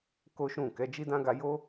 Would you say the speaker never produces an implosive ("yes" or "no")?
yes